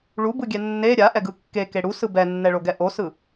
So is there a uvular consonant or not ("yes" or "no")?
no